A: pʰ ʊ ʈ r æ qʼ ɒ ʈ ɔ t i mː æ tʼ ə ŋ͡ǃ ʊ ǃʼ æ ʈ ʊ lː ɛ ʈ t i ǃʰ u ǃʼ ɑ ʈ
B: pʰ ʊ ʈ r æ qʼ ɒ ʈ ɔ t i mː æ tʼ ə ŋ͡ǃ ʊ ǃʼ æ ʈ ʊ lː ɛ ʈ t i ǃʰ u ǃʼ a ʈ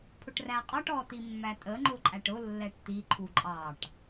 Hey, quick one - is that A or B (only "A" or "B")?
A